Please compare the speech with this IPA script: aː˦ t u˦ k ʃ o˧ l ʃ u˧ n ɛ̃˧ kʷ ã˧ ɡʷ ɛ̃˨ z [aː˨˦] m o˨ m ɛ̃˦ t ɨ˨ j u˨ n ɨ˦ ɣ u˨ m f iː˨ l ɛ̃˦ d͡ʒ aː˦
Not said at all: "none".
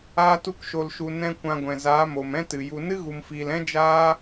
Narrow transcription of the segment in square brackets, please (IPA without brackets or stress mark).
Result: aː˨˦